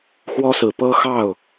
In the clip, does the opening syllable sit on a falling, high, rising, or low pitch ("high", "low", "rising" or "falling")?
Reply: high